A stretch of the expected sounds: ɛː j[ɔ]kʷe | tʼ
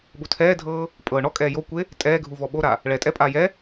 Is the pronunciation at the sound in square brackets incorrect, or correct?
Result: incorrect